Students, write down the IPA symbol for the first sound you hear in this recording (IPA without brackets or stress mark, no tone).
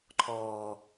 ǃʰ